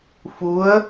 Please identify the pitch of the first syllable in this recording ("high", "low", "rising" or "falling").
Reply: rising